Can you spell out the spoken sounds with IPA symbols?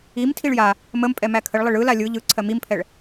i m tʰ i ɭ j a | m ə m pʼ ɛ m æ kʰ ə ɭ lˠ ɪ ɭ ɯ l a lʲ ɯ ʎ ɯ ǀʰ ɜ m i m pʰ ɛ ɭ

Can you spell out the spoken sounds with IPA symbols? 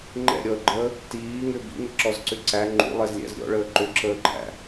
ŋ͡ǃ ɛ̰ ɾʲ ɔ ə̯ ɡ͡ǃ əː | t iː ŋ ʏ b ḭ ŋ ə ǁ ɔ z ǀ ʏ ǀ æ ŋ͡ǃ ṵ lˠ ɛ z lʲ æ̰ z ɾʲ ɔ̰ ɭ əː ǃ ʏ ǁ əː ǃʰ æ̰

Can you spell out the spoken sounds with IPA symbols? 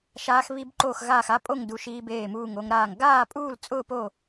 ʃ aː˦˥ x β i˦˥ b ǃ oː˥˧ x ɣ aː˥˧ x a˦˥ pʼ o˥˧ ŋ d u˦˥ ʃ i˦˥ b eː˥˧ m uː˥˧ ŋ o˦˥ ŋ ɾ aː˥˧ ŋ ɡ aː˥˧ pʼ uː˥˧ l t͡sʼ ʊː˥˧ p o˥˧

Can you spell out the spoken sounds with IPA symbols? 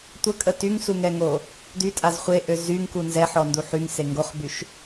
tʷ ə kʼ ə t y ŋ s u ŋ ɛ ŋ o | d y tʼ a z χʷ e ʔ ø z y ŋ k u n z ɛ ħ ɔ n d u ħ y ŋ s e ŋ ɡ o χ b y ʃ

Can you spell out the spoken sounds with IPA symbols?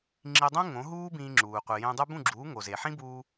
ŋ͡ǁ i˧ dˤ ũ˥ ŋ õ˩˥ ɦ uː˥ b ĩː˧ ŋ͡ǁ uː˩ qʷ i˩ j ẽ˧ dˤ u˥ b ũ˥˩ ɡ͡ǁ uː˩˥ ŋ o˩ z e˩ ħ ĩ˥ b uː˧

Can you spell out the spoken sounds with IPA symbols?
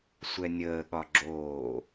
sʷ ɛ nʲ əː ɠ ɒ ɡ͡ǁ oː

